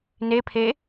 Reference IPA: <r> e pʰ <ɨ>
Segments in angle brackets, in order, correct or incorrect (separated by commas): incorrect, incorrect